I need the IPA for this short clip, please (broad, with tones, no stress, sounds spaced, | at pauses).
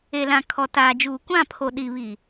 e˨ l ã˨ kʰ ɔ˨ t aː˨ d͡ʒ uː˨ kʷ ã˦˨ pʰ o˨ ɗ i˨ β i˨